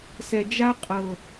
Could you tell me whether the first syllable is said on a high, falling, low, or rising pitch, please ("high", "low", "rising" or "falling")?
low